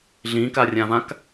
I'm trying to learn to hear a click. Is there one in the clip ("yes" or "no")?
no